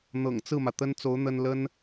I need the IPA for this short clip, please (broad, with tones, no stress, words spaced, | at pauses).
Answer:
n̪ɤ̰˨˩ŋ t͡sɹ̩˥˩mä˩ t̪ə˥nt͡so˧˥ʊ̯ n̪ə˥n lə˥n